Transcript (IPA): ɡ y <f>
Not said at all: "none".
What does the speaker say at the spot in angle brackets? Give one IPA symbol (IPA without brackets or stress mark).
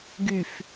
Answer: f